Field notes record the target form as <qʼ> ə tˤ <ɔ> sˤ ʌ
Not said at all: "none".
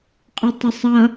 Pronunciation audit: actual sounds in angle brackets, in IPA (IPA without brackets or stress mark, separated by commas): qʼ, ə